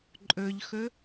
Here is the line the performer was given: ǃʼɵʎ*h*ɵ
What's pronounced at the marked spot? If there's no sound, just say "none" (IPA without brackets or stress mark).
x